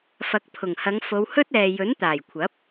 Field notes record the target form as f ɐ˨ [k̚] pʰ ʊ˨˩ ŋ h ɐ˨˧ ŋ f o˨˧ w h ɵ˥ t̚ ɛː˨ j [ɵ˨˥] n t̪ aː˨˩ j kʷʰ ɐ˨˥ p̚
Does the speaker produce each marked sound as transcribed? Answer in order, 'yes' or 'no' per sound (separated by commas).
yes, yes